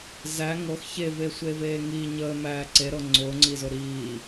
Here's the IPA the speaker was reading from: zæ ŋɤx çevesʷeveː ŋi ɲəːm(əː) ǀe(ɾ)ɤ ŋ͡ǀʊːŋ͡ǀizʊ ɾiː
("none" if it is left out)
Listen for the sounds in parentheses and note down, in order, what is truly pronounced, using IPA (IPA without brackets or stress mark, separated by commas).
æː, ɾ